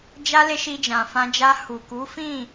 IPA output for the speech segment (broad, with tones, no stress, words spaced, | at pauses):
d͡ʒa˧ le˧ ʃi˧d͡ʒã˨fã˧d͡ʒa˧ hu˨ku˨˦fĩ˦˨